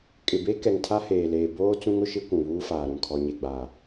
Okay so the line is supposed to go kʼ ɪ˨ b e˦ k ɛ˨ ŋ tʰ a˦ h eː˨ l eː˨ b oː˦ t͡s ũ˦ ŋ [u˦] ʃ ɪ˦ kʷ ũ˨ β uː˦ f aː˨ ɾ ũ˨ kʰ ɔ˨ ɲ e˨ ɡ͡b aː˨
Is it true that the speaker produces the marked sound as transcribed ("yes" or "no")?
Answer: no